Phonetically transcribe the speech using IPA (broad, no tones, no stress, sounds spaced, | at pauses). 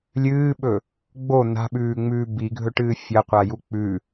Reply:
lʲ ɨː ɓ ɵ | ɡ͡b o n̪ a̤ ɓ ʉː ŋ͡m ʉː b i ɡʱ ɵ ʈ ɨː fʲ ɐ qʷ a j u k͡p ʉ